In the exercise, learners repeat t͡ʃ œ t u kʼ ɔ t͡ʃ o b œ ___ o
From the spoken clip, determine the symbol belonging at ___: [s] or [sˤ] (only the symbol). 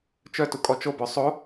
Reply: sˤ